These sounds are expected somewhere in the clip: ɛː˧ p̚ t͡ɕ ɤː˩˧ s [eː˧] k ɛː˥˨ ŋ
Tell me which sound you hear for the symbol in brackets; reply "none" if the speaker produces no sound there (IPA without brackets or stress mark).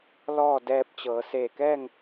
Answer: eː˧˩